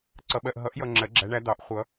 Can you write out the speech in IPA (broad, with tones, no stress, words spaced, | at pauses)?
ǀʌ˨ɓɜ˨ʔ ɦʌ˨˩˦ʔjʌ˨ ŋ͡ǁɜ˨˩˦ɡ͡ǁæ˨˦ɳæ˨˦d̪ɑ˨˩˦ʔ χʷʌ˨˩˦